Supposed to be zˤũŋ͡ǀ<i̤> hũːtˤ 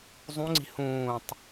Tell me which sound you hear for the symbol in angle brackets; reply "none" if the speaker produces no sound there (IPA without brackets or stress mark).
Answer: i̤